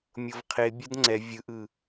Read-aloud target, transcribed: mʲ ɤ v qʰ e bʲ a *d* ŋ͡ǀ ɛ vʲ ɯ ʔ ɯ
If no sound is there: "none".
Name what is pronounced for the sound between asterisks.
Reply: d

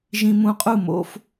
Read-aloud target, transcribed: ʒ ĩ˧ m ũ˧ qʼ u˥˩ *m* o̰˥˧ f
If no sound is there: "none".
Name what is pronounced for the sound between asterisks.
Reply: m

